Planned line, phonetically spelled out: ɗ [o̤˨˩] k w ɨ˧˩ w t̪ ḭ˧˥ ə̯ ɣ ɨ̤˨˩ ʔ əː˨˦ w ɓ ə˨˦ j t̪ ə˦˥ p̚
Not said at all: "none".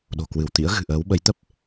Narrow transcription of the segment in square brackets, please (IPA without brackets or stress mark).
o̤˨˩